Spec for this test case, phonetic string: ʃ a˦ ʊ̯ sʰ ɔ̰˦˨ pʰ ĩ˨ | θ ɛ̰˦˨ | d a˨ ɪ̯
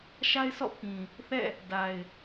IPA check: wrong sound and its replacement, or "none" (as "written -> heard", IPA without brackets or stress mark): ʊ̯ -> ɪ̯